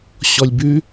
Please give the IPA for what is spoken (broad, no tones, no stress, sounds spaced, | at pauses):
ɕ ɔ lʲ b ʉ